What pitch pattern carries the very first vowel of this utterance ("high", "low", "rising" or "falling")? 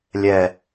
low